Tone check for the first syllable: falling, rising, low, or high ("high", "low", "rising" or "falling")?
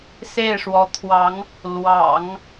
falling